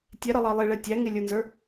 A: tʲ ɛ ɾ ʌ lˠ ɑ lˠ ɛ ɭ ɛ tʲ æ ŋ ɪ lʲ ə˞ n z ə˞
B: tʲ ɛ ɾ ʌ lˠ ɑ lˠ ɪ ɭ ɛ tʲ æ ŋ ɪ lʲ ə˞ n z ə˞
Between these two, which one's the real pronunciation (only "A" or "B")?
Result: B